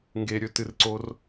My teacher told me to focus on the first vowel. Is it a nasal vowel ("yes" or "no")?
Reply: no